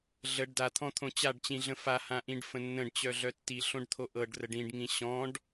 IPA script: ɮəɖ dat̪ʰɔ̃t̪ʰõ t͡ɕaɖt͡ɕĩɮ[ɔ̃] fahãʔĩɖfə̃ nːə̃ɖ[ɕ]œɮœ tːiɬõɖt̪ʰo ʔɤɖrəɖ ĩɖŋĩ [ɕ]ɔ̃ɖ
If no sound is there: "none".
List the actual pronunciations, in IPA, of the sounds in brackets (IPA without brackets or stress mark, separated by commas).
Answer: ə̃, t͡ɕ, ɕ